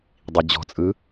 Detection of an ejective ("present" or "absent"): present